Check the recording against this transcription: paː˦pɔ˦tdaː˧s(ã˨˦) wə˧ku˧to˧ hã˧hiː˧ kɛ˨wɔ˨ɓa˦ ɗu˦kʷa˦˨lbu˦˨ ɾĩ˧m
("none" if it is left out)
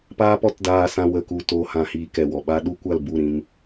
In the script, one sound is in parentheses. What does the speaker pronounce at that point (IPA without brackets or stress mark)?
ã˧